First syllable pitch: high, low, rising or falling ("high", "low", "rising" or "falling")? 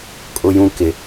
high